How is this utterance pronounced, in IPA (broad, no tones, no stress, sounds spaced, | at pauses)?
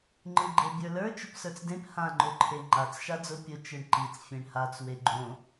ŋ͡ǃ ɯ ɡ͡ǃ e bʲ ə˞ l ə˞ t͡ʃ ʊ p s ə˞ t͡s d ẽ p h ã ŋ͡ǃ ʊ ǃʰ e ŋ͡ǃ a t͡s ʃ a d͡z ʊ pʲ ʊ t͡ʃ ɯ ɳ ǃ i t͡s fʲ ẽ ɳ h a t͡s w e ɡ͡ǃ õ